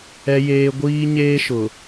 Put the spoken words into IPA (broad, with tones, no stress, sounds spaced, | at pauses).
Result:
ɛ˦ j eː˦ ɡʷ iː˦ ɲ eː˦ ʃ ʊ˨